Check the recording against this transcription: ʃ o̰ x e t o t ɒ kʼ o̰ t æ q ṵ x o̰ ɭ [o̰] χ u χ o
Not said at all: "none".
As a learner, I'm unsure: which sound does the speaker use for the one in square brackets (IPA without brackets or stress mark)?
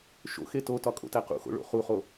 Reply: o̰